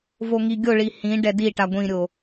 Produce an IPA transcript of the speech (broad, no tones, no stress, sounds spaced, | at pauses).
v o ŋ i ɡʲ o ɭ i h ĩ ɖ ɛ d i ʈ a ɡʷ ĩ ɾʲ o